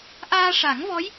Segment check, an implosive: absent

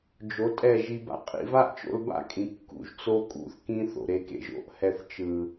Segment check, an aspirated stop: absent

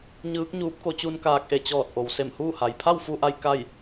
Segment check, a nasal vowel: absent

